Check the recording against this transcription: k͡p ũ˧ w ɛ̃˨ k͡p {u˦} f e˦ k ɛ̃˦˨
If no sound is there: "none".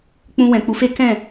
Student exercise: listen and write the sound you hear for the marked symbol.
u˨˦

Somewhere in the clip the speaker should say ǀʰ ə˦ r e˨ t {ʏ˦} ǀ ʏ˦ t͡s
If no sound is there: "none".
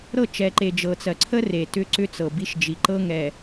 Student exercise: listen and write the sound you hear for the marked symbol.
ʏ˦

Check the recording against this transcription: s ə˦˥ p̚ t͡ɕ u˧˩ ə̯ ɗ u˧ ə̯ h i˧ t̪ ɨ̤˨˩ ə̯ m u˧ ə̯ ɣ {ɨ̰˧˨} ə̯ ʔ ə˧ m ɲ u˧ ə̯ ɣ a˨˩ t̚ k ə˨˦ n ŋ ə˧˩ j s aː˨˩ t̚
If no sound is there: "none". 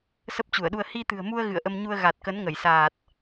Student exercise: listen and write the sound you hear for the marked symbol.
ɨ̰˧˨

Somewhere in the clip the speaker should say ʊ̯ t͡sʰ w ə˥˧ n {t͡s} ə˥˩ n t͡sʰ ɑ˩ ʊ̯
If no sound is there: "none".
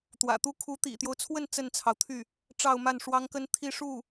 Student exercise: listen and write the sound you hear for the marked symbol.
t͡s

